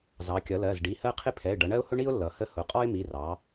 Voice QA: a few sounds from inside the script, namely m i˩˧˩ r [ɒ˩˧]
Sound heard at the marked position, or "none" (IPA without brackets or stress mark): ɑ˩˧